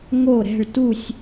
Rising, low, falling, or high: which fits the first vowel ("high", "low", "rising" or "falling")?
falling